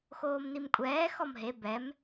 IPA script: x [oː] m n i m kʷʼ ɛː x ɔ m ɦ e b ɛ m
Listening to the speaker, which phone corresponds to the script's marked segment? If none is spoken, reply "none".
oː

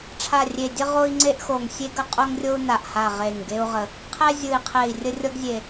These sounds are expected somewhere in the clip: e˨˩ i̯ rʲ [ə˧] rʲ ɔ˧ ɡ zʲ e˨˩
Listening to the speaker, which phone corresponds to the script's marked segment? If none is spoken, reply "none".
ə˧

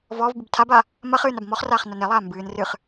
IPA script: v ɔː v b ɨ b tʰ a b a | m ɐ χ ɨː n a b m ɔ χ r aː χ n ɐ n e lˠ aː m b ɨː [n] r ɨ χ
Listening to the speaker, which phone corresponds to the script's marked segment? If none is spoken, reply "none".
n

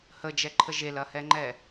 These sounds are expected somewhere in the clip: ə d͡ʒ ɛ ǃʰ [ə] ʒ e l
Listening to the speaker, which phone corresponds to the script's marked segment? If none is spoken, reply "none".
ə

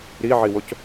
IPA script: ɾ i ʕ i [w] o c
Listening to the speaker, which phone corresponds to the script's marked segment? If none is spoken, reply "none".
w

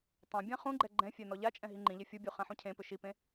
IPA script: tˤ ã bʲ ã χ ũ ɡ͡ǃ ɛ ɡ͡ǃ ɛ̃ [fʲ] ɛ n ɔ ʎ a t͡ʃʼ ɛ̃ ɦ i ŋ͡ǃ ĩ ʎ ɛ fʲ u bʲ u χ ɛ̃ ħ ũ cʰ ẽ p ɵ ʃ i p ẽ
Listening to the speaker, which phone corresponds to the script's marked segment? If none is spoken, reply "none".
fʲ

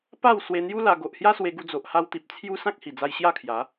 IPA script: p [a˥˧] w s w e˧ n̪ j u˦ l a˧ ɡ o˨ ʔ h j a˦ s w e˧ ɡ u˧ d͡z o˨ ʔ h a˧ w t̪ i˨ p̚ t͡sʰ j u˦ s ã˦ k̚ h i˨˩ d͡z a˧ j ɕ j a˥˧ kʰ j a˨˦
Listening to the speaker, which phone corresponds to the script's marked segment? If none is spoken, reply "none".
a˥˧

